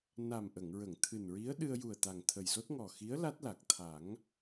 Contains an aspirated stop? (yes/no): yes